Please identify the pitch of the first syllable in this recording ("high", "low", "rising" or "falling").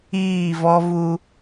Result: falling